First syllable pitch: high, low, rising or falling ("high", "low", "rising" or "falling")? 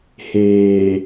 low